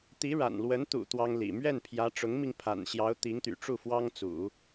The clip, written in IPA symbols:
t̪i˧˥ɻa̰˨˩nlwə˧˥n t̪ṵ˨˩ t̪wɑ˥ŋlḭ˨˩ mɥɛ˥˩npʰjä˧˥ ʈ͡ʂʊ˧˥ŋmi˧ŋpʰa̰˨˩nɕjɑ˧˥ʊ̯ t̪i˧˥ŋt̪y̰˨˩ʈ͡ʂu˥˩fwɑ˥ŋ t͡sṵ˨˩˦

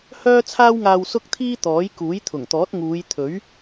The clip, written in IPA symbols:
hœː˥t͡sʰaː˥wŋaː˧w sʊ˥k̚t̪ʰiː˥ t̪ɔː˨˥j kuː˨˥jt̪ʰʊ˨˩ŋt̪ɔː˨˥t̚ ŋuː˨˧jt̪ʰɵ˨˥ɥ

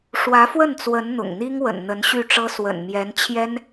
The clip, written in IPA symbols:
ʂwä˧˥fwə˥˩nt͡swə˧˥n n̪ʊ̰˨˩ŋn̪i˥ŋ wə̰˨˩nn̪ə˧˥nɕy˥˩ʈ͡ʂɤ˥ swə̰˨˩nmjɛ˧˥n t͡ɕʰjɛ˥n

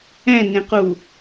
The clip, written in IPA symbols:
ɛ̃nẽqu

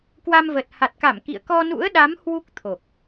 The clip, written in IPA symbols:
kwa˧mvə˨˩t̚ ha˨˩t̚ka˧˩m kḭ˧˨ə̯ kɔ˧nṵ˧˥ə̯ɗa˨˦m hwu˦˥k̚t̪ʰo˨˩k̚

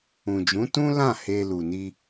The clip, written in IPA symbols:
ũ˨d͡ʒũ˨˦tũ˦lã˦˨ he˧ lu˨ni˧

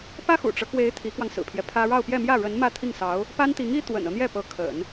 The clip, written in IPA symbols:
pä˥xṵ˨˩ʈ͡ʂɤ˦kwe˧˥ɪ̯ t̪ʰi˧˥kwɑ˧ŋsɹ̩˨˩pʰjɛ˦ pʰä˥ ɻɑ˥˧ʊ̯pjɛ˥˧mjä˥˩ ɻə˧˥n mä˥˧t̪ʰi˥˩ŋsɑ˧˥ʊ̯ | pa˥nt̪i˧˥ŋi˥ t̪wə̰˨˩nɤ˦n̪jɛ˥˩ pɤ˧˥kʰə̰˨˩˦n

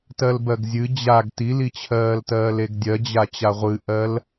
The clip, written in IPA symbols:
tɜlbɜɡzʲɨ d͡ʑaɡ tilit͡ɕʰɜːltɜːl eɡdʲɜd͡ʑa t͡ɕaʁʷɨʔɜl

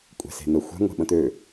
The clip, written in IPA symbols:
kʷʼɛ̤se̤n̪ə xʷɛ̤ ŋʷe̤ɓə̃t̪ø

